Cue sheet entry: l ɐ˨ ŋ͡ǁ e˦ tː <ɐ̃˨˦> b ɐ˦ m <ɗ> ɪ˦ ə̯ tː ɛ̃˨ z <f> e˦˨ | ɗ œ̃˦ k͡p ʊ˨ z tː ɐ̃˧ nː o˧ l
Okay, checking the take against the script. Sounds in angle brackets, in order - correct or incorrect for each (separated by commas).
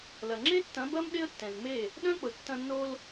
correct, correct, incorrect